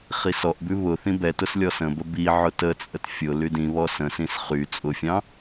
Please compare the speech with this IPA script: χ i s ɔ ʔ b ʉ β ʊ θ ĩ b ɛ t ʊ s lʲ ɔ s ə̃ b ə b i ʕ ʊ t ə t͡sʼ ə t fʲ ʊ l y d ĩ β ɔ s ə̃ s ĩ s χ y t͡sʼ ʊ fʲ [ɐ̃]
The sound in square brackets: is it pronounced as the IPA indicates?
no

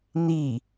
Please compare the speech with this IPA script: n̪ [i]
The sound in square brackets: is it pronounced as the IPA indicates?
yes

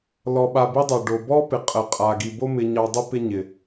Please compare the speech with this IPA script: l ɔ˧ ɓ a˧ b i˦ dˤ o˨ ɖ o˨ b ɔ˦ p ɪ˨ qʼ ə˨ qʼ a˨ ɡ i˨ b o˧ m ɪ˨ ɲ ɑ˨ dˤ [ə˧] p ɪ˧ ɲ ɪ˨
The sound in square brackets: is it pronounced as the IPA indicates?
yes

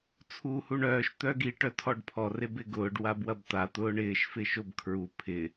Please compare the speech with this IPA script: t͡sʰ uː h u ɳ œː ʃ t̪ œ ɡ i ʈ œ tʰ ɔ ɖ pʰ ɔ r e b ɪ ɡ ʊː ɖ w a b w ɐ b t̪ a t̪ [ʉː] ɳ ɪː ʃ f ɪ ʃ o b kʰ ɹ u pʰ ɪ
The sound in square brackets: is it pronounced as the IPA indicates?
no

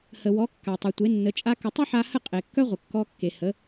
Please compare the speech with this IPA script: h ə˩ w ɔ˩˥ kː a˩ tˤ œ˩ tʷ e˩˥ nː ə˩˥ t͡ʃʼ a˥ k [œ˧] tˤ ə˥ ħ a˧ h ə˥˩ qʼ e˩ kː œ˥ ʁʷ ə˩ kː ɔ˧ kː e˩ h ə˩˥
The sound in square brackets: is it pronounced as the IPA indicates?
no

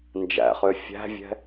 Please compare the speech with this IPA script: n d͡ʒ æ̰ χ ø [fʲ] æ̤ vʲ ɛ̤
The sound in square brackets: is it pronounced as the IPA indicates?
yes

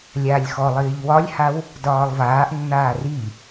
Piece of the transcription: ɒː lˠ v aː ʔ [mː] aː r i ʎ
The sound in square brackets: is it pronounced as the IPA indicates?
no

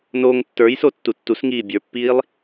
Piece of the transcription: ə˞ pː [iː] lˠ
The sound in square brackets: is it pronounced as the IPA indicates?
yes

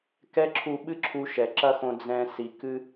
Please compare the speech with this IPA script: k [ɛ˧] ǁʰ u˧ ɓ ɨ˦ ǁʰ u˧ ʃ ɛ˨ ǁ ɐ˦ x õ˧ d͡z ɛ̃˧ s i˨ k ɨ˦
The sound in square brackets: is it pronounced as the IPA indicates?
no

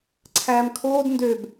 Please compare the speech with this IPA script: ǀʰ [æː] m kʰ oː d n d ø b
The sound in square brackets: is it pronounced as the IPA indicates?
yes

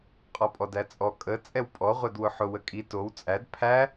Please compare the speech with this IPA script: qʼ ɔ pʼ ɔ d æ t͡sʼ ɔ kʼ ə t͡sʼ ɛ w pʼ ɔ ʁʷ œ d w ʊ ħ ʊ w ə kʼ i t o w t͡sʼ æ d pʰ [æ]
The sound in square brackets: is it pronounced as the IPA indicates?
yes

